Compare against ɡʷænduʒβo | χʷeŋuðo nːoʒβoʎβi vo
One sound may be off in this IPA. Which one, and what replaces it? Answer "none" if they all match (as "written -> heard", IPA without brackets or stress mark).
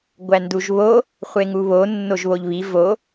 ð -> β